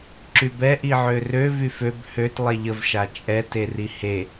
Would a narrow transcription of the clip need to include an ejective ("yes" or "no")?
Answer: yes